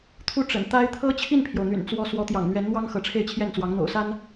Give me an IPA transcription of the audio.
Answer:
t̪ʰ u˥˩ ʈ͡ʂ ə̰˨˩ n t̪ a˥ ɪ̯ t̪ʰ ɤ˥ t͡ɕʰ i˥˩ n pʰ j o˩ ʊ̯ n̪ y̰˨˩ n t͡s w ɔ˧˥ s w ɔ˧˥ t̪ j ɑ̰˨˩ ŋ n̪ ɥ ɛ˧˥ n n̪ w ɑ˥ ŋ x ɤ˧˥ ʈ͡ʂʰ e˥˧ ɪ̯ t͡ɕʰ j ɛ˥˩ n t͡s w ɑ˧˥ ŋ n̪ o̰˨˩ ʊ̯ s a˥ n

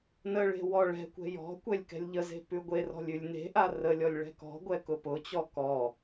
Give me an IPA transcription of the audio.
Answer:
n ə ɭ e̤ w ɔ ɭ ɛ̤ kʷ ɛ̤ j ɔ̤ kʷ ɛ lʲ k ɛ̤ lʲ ʎ ə z e̤ p ʉ ɡʷ e r ɔ̤ lʲ ʉ lʲ n e̤ ʔ a r ə lʲ ɔ lʲ ɭ ɛ̤ k ɔ̤ ɡʷ ɛ k ʊ p ʊ t͡ɕ ɔ k ɔ

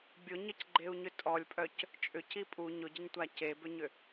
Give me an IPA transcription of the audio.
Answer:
bʲ ʊ ɲ ə c ɡ͡ǃ e u̯ ɲ ʏ tʼ ɔ lʲ pʼ œ c | t͡ʃʼ ʏ c i pʼ u ɲ ʊ ɟ ə ɲ tʷ a c e b ʏ ɲ ʏ

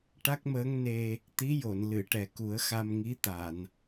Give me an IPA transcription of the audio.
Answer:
ʈ a˦˥ k̚ m əː˧˥ ŋ n e˧ | t̪ i˧˥ j o˨˩˨ n l ɨ˨˩˨ ʈ ɛ˨˩ k u˨˩˦ ə̯ x a˧ m ŋ i˧˥ t̪ a˨˩˨ n

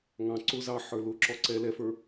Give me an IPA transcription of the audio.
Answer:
ŋ ɑ̃ ǀ ʊ z ɑ ħ ə˞ l ʊ ǁ ɔ ǀ ɛ l ɛ f ə˞

